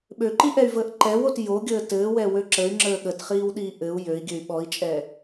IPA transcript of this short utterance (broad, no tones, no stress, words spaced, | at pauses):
ɓøǃiʔɛy̯vəːʔ ǃɛwot joɡʲəː tɘːwɛwø ǁəy̯ŋ͡ǁəː ɠətχiːwɗiː ʔɘu̯ jøi̯ɡʲøy̯ ɓɔi̯t͡ʃʼɛ